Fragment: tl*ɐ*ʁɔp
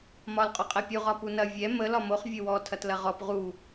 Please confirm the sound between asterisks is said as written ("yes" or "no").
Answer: yes